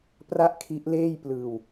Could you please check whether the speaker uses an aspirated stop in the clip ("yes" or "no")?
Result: yes